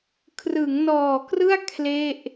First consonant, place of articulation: velar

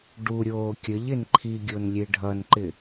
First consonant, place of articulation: retroflex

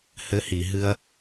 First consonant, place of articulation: glottal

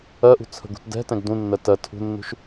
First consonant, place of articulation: glottal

